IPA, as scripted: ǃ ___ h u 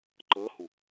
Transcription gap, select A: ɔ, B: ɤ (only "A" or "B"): B